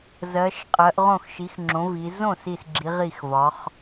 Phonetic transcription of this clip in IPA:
z ɜ˩˧ ʃ qʼ ɜ˩˧ ʔ ʁ õ˥˩ x ʃ i˩˥ x ŋ͡ǁ õ˩˥ v i˩˧ z õ˥˩ s i˥˩ s ɡ͡ǁ i˩˥ ʁ i˥˩ x v ɒ˩˥ χ

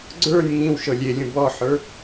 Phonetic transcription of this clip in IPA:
ɡ͡ǀ ə˞ nʲ ŋ ĩ w ʃ ɤ lʲ e lʲ ũ b ɔ ħ ə˞

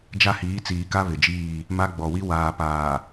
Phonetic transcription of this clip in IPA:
d͡ʒ a˦ h iː˨˦ t͡s iː˨ k a˦ β ɪ˨ d͡ʒ iː˦˨ | m a˦ ɡ͡b ɔ˨ w i˦ w aː˨ p aː˨

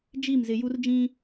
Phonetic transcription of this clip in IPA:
d͡ʒ i˦˨ m z ɪ˨ j u˦ r d͡ʒ ĩ˦

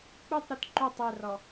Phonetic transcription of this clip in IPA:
k͡p ɯ tˤ ɾ u t ǃ o tˤ ɛ r ɔ

